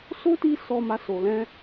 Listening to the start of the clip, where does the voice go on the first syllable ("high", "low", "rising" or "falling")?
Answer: high